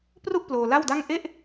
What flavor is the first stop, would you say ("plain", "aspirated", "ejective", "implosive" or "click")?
plain